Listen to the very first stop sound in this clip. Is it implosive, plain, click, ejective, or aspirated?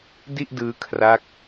plain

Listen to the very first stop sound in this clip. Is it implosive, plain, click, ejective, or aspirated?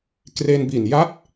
plain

